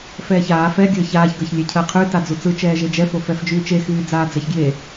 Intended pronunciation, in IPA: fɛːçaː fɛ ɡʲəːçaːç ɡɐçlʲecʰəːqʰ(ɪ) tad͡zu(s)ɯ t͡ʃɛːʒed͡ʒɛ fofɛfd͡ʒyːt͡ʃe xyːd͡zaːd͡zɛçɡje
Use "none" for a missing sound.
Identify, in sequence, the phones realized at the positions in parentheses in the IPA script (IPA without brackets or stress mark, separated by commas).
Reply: y, t͡s